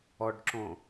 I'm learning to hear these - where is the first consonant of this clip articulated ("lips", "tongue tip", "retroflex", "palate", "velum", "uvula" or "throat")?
retroflex